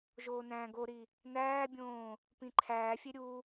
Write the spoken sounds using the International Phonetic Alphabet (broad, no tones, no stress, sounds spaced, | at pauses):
ʒ oː n æ̃ː ɡ o ɾ i | n æː bʲ õː | p ĩ ǃʰ æː fʲ e ɾʲ u